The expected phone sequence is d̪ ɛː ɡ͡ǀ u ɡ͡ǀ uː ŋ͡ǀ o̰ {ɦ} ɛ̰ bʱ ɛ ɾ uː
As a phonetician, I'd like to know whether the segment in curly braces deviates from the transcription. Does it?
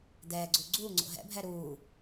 no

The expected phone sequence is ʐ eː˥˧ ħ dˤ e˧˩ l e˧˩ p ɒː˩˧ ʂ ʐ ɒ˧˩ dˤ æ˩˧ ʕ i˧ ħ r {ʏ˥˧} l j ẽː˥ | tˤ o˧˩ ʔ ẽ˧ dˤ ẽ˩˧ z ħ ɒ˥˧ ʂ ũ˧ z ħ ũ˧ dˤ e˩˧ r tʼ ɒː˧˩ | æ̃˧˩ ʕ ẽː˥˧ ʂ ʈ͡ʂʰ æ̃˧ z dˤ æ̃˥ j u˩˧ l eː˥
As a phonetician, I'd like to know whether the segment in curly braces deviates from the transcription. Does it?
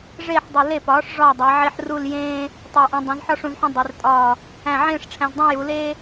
yes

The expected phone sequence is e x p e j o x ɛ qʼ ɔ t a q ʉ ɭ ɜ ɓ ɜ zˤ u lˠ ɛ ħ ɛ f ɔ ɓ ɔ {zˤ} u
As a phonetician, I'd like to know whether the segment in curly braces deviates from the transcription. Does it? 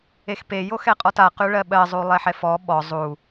no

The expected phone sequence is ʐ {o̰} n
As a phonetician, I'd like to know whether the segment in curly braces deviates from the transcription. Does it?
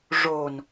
yes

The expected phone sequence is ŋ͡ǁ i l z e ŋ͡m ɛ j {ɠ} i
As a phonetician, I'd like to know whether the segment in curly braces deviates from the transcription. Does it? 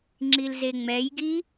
yes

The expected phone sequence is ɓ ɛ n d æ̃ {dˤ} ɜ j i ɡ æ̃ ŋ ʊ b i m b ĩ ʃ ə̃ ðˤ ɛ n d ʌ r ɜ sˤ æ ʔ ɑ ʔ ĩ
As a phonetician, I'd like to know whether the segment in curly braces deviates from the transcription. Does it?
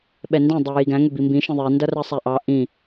no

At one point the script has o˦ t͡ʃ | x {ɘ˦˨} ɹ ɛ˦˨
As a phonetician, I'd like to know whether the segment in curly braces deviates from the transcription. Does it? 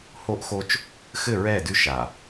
no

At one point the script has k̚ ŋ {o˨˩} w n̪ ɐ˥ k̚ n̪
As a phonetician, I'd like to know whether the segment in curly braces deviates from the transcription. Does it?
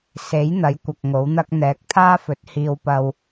yes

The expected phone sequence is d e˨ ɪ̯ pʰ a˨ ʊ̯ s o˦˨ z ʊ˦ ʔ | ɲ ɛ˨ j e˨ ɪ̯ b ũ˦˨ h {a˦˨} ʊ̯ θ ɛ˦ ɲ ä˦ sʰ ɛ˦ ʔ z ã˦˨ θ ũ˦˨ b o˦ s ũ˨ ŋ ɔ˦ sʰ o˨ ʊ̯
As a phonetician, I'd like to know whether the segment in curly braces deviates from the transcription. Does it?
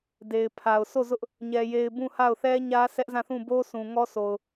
no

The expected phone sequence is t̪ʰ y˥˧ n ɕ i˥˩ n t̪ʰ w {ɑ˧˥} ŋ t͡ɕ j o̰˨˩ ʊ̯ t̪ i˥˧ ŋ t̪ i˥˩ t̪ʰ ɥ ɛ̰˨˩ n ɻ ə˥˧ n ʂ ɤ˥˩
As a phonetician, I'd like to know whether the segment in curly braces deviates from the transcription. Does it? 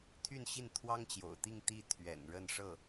yes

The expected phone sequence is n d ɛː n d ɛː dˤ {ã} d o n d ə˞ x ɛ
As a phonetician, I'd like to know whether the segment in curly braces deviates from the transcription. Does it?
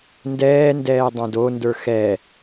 no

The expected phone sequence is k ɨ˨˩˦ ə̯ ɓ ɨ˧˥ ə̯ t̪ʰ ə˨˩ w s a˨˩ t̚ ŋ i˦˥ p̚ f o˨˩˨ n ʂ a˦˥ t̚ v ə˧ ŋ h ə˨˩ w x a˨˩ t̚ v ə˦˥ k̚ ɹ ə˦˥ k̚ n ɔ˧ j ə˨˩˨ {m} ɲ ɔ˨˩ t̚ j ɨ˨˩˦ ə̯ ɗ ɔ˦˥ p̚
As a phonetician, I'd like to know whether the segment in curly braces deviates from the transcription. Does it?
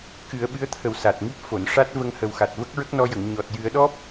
yes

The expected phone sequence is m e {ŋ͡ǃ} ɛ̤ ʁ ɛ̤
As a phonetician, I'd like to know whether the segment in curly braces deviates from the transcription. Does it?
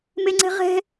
yes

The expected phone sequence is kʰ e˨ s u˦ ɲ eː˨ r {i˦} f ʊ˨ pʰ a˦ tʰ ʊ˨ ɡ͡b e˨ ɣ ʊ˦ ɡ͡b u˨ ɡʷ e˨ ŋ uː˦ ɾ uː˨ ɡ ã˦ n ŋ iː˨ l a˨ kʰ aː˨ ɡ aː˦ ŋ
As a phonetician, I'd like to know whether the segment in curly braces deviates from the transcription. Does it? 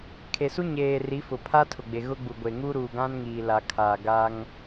yes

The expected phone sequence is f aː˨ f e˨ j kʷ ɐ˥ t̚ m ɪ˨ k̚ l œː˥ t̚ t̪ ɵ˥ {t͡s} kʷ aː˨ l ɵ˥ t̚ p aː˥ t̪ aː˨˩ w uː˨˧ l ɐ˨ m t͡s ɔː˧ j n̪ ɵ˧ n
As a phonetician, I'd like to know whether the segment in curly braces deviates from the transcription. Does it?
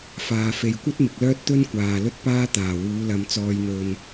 yes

